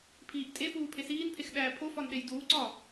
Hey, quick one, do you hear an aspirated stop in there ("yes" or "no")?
yes